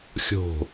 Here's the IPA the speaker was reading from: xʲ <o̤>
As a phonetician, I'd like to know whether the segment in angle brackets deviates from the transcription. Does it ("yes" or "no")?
no